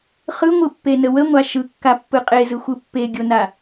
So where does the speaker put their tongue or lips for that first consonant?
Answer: uvula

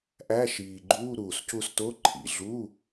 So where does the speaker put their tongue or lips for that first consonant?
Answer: throat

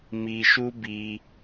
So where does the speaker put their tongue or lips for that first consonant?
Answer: lips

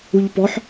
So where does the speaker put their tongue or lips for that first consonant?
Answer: palate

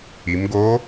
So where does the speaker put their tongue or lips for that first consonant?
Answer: lips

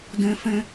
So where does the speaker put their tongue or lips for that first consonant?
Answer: tongue tip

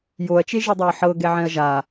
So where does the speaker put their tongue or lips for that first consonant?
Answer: palate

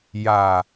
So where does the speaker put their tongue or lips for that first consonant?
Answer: palate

